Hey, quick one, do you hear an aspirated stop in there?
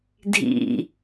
no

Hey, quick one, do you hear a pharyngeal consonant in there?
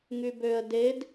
no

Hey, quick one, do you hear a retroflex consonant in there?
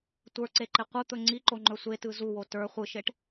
yes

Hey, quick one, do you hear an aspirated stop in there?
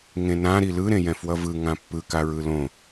no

